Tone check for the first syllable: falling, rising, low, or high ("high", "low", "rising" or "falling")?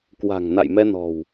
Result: low